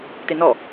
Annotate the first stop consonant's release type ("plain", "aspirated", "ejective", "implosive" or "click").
plain